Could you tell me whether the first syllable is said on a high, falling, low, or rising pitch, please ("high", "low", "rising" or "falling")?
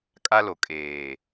high